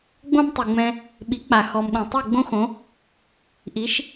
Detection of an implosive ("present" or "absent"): present